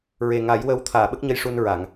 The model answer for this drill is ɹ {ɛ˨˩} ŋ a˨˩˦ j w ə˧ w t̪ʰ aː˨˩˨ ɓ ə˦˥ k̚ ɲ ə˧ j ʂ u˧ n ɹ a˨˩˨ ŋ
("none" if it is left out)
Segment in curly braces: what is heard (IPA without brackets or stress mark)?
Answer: e˨˩